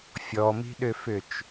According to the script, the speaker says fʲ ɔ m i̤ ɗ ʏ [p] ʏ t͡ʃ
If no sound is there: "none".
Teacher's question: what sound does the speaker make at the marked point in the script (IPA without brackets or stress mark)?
f